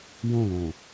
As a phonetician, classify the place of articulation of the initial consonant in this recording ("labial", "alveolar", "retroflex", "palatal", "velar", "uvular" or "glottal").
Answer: palatal